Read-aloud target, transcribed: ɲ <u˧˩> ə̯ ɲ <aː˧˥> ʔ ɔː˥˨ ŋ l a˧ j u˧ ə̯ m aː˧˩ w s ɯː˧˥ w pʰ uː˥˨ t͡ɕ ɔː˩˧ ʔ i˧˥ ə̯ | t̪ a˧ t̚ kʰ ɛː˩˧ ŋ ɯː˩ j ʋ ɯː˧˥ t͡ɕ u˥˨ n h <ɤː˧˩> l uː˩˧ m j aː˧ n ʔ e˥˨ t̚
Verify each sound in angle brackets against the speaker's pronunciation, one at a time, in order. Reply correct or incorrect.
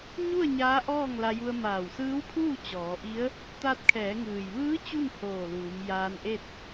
incorrect: u˥˨, correct, incorrect: oː˧˩

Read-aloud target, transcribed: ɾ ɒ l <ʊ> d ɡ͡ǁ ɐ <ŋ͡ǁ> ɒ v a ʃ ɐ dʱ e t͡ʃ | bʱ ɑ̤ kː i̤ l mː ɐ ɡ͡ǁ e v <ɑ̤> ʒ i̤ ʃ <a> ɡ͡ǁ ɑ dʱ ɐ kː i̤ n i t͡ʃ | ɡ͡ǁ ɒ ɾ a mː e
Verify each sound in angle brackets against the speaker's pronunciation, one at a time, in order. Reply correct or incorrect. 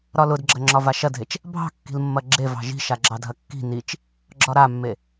correct, correct, correct, correct

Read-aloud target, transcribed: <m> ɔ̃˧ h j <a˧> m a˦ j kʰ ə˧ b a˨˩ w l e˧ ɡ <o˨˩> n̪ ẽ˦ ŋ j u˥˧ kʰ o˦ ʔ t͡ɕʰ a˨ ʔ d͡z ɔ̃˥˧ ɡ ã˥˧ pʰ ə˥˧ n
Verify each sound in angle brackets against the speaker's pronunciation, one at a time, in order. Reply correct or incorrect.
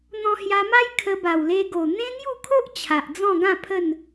incorrect: n̪, correct, correct

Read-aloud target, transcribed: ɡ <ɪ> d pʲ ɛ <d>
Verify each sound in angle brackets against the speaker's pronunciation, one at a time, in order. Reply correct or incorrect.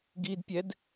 incorrect: i, correct

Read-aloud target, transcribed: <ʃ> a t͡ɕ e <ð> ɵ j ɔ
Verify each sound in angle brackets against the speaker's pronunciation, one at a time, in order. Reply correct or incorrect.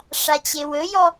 incorrect: ʂ, incorrect: w

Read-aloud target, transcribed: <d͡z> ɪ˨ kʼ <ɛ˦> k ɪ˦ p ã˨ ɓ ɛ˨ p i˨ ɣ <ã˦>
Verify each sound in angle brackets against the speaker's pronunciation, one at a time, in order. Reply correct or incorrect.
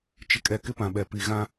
incorrect: t͡ʃ, incorrect: ɛ˨, correct

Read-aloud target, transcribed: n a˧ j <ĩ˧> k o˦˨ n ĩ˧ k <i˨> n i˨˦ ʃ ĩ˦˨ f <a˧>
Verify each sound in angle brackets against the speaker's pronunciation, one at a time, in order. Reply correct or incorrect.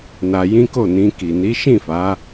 incorrect: ĩ˦, correct, incorrect: a˨˦

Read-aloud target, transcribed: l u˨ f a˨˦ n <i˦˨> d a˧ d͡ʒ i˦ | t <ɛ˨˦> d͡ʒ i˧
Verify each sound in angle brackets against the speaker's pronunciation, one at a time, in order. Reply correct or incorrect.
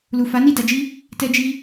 correct, incorrect: ɛ˧

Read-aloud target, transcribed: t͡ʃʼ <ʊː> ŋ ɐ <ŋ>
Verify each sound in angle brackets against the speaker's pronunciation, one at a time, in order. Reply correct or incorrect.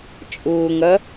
correct, incorrect: none

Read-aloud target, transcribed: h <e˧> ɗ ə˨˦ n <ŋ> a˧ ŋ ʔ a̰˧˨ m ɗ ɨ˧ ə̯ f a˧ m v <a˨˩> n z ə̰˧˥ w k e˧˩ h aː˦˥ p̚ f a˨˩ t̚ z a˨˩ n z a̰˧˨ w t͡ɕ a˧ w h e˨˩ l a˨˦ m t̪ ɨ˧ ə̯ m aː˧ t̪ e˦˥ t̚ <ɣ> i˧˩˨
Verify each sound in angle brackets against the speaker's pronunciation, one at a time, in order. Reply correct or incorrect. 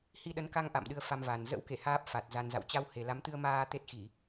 incorrect: i˧, incorrect: k, correct, incorrect: x

